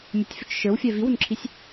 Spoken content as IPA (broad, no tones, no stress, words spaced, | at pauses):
mʲətʲfʏt͡ʃ ʃə˞wfʲɛ viwʏmǁʰisʲ